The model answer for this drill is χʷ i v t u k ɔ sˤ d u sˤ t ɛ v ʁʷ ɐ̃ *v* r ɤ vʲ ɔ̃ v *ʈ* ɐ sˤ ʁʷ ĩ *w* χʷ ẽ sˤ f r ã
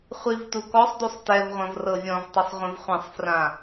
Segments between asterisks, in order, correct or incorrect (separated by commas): correct, incorrect, incorrect